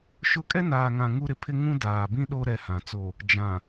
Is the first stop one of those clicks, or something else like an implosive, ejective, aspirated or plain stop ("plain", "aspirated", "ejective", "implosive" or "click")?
ejective